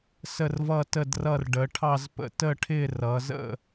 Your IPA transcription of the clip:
s ə˦˨ r v ʌ˦˨ t ə˦˨ d r ʌ˦˨ r ɖ ə˩˧ ʈʰ ɑ˦˨ z p ə̰˦˨ t ə˦˨ ʈʰ ɪ˦˨ r ʌ˩˧ z ə̰˦˨

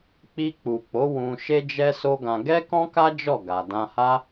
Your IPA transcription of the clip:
k͡p i˧ k͡p u˨ k͡p o˨˦ w ũ˧ ʃ e˦ d͡ʒ ɛ˦ s o˦ ɡ ã˧ ɡ ɛ˦ k ɔ̃˦ k a˦ d͡ʒ ɔ˦˨ ɡ a˨ d ã˧ h a˦

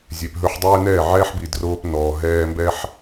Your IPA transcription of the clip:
zʲ e˨ p ɦ ɵ˧ ħ dˤ ɛː˦ n ɛː˦˨ ʕ ɛː˦ ħ b i˨ d r oː˧ p n ɔː˨ ɦ ɛː˧ m b ɛ˦ ħ

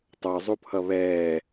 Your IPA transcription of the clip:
tˤ ə˞ zˤ u pʰ ʌ β ɛː

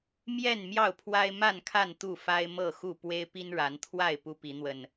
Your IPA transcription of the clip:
m j ɛ˥˨ n m j ɑ˥˨ ʊ̯ pʰ w a˦ ɪ̯ m a˥˨ n kʰ a˥˨ n t̪ u˥˨ f a˦ ɪ̯ m ɤ˥˨ x u˥˨ p w e˦ ɪ̯ p i˦ n ɻ a˨˦ n t̪ʰ w a˥˨ ɪ̯ p u˦ p i˨˦ n̪ w ə˨˩ n

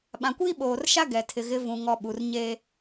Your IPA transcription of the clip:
ɓ ã˨ kʷ iː˦ ɓ oː˨ r ʃ a˦ ɡ ɛ˨ tʰ ɪ˨ ɣ ɪ˨˦ v ũ˨ ŋ ɔ˨ ɓ u˨ r ɲ eː˦

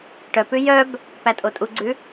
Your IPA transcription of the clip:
ʈ œ p ʉ j œ b | p æ tʼ o tʼ u ɡ͡ǀ ʉ

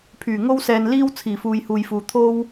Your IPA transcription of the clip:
pʰ yː˨˩ ŋ o˥ w s ɛː˧ n l iː˥ w t͡sʰ iː˨˩ f uː˨ j h uː˨ j f uː˨ t̪ʰ o˥ w

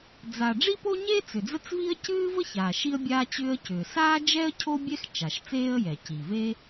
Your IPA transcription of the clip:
d͡z a˩ ɖ͡ʐ i˥ p o˥ ɲ eː˥ t͡s ʏ˩ d͡z ə˥ t͡s v i˥ ə̯ c ɨː˥ v ə˥ ç aː˩ ʃ i˥ ə̯ bʲ aː˥ t͡ɕ ʏː˥ ə̯ c ʏː˩ s aː˥ d͡ʒ ɛ˥ ə̯ cʰ o˥ bʲ ɛ˥ x t͡ʃ a˩ ʃ t͡s eː˥ ə̯ j ɛ˩ c i˩ v e˥

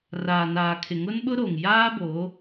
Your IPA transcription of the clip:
r aː˨ n aː˨ kʰ ɪ˨ ŋ ʊ˦ n ɓ ʊ˦ ɾ o˨ ŋ j aː˦ b o˨˦

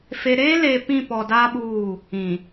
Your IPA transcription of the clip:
f e˨ ɾ eː˦ l e˨ p ĩ˦˨ p ɔ˨ d aː˦ ɓ uː˦˨ | ĩ˨

